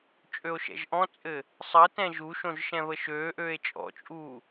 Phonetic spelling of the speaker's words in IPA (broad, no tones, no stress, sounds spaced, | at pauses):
t͡ʃʼ ø o̯ ʃ ɛ̰ ʒ ʔ ɔ̃ t͡sʼ ɘ | sˤ ə t ɛ̃ ʒ u ʃ õ ʒ ʃ ɛ̃ β ə ʃ øː ʔ øː e̯ t͡ʃʼ ɔ̰ t͡ʃʼ uː